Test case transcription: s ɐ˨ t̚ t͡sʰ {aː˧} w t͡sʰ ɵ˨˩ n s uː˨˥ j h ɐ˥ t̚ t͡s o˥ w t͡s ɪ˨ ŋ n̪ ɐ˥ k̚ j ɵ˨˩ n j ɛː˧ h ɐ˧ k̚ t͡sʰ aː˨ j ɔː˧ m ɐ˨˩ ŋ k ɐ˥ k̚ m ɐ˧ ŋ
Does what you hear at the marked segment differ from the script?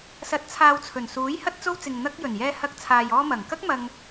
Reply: yes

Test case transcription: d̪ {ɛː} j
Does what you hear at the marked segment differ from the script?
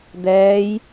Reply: no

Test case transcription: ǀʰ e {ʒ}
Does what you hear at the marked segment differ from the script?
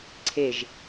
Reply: no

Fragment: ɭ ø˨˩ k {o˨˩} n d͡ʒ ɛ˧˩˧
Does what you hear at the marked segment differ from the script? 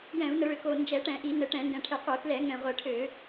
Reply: no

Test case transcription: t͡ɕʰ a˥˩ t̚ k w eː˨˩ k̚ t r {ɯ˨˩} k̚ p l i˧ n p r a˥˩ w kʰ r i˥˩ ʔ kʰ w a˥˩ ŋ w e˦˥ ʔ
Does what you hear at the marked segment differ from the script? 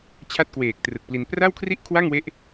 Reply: no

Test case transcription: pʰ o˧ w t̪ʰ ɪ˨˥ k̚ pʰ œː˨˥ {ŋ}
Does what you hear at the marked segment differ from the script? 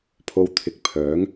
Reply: no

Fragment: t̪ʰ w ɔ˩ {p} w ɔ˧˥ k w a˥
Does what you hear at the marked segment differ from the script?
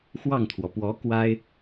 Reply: no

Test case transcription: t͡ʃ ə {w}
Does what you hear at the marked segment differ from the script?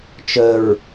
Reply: yes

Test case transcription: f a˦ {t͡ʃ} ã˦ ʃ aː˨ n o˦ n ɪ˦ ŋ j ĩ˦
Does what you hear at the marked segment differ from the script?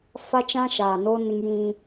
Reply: no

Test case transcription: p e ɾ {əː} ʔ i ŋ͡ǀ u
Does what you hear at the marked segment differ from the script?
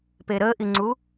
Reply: no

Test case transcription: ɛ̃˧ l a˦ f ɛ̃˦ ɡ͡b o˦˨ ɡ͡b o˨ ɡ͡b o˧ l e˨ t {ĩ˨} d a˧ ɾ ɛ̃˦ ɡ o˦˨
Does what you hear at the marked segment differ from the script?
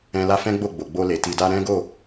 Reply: yes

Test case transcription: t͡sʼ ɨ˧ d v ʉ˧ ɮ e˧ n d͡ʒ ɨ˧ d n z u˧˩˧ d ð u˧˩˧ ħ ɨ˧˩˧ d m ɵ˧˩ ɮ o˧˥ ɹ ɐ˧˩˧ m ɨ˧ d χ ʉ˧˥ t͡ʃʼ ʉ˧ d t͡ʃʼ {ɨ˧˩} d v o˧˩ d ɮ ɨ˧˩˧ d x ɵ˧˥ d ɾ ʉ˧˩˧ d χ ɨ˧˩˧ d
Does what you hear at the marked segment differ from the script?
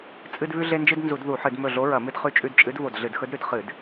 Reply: yes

